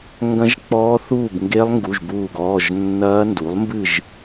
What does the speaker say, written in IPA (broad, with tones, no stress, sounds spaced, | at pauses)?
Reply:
ŋ ɡ ɐ̃˦˥ ʒ k͡p ɔː˦˥ θ uː˥˨ b ŋ ɡ e˦˥ lˠ ŋ ɡ u˩˧˩ ʒ b uː˧˩ ɡ ɔː˩˧˩ ʒ nː ɐː˦˥ n d u˩˥ lˠ m b ɨ˥˨ ʒ